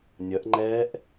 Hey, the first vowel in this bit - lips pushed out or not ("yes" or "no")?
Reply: no